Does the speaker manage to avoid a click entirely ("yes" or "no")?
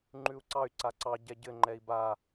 no